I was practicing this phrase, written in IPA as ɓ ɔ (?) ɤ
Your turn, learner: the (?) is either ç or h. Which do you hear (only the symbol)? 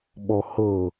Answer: h